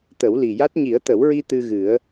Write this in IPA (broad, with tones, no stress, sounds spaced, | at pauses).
t̪ ə˨˩˦ w l i˨˩ j a˦˥ t̚ ɲ i˨˩˦ ə̯ t̪ ə˨˩˦ w ɹ i˧ t̪ ɨ˧ ɣ ɨ˨˩˦ ə̯